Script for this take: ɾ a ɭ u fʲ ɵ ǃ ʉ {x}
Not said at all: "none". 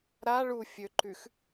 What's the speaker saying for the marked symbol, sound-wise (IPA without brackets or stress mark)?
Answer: x